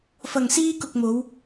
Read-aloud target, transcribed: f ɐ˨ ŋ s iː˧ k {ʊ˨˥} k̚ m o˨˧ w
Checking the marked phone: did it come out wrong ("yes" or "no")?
yes